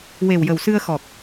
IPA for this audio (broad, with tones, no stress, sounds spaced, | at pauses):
w e˨˩ w j ə˨˩ w s ɨ˧ ə̯ x ɔ˨˩ k̚